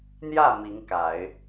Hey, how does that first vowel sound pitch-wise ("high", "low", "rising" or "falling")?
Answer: falling